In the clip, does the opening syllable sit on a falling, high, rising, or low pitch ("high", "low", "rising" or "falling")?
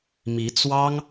rising